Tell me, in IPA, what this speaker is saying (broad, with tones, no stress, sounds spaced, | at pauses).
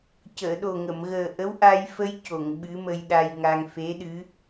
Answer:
c əː˨˩˨ ɗ o˨˩ ŋ ə˨˩˨ m ɣ əː˨˩ ʔ ə˧˥ w ʔ a˧ j f ə˧ j c o˨˩˨ ŋ ɓ ɨ˧˥ m ə˧ j ɗ a˧ j ŋ a˧ ŋ f e˧˥ ɗ ɨ˧˥